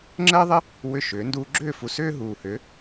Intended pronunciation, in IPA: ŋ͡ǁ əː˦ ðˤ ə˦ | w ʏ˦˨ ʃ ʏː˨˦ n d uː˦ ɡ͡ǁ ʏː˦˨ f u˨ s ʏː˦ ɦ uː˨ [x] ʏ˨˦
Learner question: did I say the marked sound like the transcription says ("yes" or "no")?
no